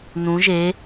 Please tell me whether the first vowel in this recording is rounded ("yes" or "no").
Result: yes